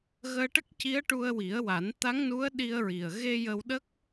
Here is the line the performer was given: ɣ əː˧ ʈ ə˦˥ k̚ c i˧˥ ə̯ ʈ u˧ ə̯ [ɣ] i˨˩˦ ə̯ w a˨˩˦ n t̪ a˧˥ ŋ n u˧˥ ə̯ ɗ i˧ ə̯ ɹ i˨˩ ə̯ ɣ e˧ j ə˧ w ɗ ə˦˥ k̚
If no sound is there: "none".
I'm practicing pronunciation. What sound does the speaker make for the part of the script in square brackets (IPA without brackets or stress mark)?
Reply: w